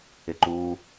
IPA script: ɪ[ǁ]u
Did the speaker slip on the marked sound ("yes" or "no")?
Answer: yes